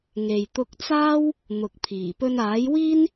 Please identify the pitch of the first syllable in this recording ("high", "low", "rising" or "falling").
low